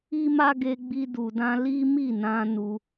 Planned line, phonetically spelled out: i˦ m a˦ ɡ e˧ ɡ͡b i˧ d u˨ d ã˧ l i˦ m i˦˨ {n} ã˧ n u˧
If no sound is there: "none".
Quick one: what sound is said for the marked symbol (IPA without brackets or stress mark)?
n